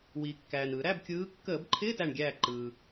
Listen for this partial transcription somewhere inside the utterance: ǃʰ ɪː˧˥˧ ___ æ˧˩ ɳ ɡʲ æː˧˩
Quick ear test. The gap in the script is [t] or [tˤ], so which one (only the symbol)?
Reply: t